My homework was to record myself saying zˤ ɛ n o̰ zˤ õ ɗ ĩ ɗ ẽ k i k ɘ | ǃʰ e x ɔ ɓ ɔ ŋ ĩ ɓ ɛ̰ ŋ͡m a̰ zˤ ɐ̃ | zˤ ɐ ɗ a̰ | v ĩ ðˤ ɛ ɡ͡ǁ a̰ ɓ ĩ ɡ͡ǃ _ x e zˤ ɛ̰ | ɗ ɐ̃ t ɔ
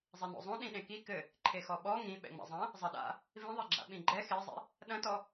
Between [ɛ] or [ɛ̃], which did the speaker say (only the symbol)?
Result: ɛ